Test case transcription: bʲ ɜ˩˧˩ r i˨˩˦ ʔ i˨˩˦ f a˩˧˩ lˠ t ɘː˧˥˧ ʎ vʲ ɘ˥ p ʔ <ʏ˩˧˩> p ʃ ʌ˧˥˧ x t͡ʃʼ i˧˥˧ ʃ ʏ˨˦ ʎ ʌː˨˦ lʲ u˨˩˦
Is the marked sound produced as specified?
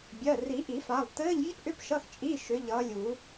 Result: no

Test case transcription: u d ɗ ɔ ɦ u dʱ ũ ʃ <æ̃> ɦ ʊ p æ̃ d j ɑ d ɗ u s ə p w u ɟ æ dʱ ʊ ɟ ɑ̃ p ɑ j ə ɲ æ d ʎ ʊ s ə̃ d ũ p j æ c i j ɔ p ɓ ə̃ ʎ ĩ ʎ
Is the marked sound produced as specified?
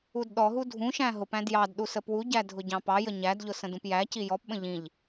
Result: yes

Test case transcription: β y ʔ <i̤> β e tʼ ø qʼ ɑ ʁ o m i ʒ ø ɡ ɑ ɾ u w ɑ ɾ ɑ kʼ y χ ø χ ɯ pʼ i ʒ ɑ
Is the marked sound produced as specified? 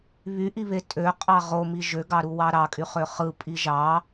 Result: no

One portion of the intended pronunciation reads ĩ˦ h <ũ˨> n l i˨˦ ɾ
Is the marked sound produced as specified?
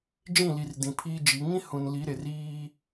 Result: yes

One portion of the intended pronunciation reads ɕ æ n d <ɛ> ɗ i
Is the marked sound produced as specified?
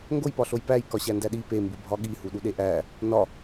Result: no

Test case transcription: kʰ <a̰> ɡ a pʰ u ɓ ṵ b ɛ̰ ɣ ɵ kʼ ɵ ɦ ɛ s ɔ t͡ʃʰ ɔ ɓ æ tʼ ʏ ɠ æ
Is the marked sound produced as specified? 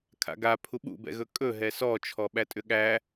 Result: yes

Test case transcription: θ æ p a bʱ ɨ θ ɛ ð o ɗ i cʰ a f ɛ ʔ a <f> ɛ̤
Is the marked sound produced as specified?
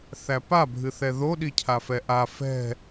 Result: yes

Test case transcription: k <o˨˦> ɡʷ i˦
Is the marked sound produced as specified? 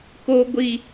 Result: no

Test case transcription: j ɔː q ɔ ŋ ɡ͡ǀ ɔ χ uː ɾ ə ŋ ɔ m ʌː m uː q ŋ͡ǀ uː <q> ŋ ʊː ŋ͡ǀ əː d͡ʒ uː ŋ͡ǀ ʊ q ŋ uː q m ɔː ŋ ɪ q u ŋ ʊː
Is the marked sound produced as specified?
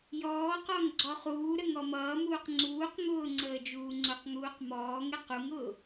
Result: yes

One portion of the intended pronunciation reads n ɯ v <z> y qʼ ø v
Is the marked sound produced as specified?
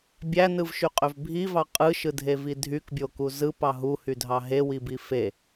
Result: no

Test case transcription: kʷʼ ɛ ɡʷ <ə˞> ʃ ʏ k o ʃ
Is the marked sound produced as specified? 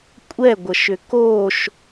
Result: no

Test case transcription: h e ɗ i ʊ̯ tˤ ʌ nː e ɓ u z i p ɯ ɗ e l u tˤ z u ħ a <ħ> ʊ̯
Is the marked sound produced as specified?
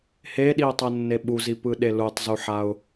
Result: no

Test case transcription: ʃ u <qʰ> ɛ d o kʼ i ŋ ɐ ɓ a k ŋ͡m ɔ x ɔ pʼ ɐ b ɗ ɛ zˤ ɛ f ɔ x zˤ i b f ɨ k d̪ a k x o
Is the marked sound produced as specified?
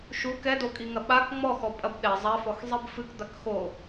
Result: no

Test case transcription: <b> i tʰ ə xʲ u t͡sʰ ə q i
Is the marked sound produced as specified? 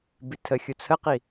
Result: yes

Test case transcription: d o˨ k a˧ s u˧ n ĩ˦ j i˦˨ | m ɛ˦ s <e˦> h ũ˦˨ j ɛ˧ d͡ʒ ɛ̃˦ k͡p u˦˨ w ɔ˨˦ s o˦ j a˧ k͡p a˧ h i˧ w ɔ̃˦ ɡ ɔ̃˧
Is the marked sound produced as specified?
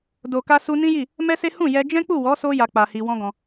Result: yes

